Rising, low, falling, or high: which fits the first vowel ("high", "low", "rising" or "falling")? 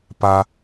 high